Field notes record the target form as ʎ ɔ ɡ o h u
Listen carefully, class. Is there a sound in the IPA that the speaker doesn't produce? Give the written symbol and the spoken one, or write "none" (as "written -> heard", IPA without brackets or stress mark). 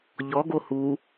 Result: none